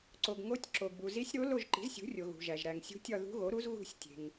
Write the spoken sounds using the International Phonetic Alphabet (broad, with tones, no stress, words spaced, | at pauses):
ǀo˩ɡŋo˧˥tʲǁo˩ɡbu˩ zi˧˥sʲɾo˧˥ lo˦˨ʒǃi̤˩˥zsʲṳ˩˥rʲo˩ ɣṳ˩ʒæ˩ʒ ɾæ˩ŋsʲṳ˧˥ tʲɒ˦˨ðṳ˧˥ɣo˩˥ɾu˧˥z ɣṳ˦˨sʲtʲe̤˩ŋ